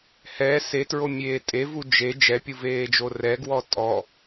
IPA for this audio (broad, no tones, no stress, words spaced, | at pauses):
hɛ setɹomʲeː tʼevu d͡ʒe d͡ʒɛpʲuveːd͡ʒo rɛɡwɔ tʼɔ